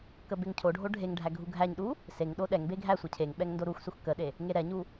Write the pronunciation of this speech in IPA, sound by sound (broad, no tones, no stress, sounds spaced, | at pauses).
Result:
k ə b e ŋ cʰ o ɖʱ o ɖʱ e ŋ ɖʱ æ ɡʱ u ɡʱ æ ɲ ɗ u | s e ŋ ɗ o ɗ ɛ ŋ b e ɡʱ æ sʷ ə cʰ e ŋ ɓ ɛ ŋ n d o ɾ u x s u x k ə ɗ e | ŋ e ɾ ɛ ɲ u